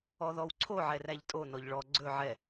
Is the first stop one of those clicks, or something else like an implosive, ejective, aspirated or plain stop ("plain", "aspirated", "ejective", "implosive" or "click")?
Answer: click